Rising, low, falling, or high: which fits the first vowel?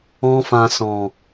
high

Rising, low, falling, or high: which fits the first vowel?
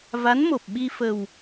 rising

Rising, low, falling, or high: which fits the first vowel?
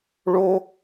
high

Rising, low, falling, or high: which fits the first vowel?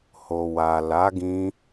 low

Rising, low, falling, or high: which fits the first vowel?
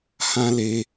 high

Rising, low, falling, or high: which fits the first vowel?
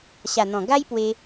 low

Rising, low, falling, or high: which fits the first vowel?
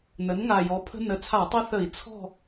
rising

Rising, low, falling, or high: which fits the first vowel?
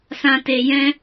low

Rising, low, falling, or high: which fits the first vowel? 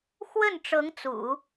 falling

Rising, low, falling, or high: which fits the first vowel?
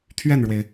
falling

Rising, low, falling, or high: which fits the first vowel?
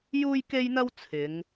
high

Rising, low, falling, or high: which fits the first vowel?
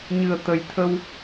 low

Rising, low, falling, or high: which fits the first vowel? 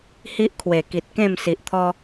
high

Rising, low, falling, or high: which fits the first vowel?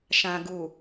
low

